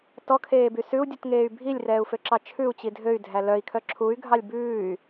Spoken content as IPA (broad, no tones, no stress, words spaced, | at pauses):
tɔkʰeːby sʉu̯dʲutŋeːy̯ bʱilʲrɛːu̯føǁɑ t͡ʃʰʉu̯t͡ɕi dʱøy̯dʱæ lœi̯kʰœ ǁʰuy̯ɡʱɑlʲ bʉːy̯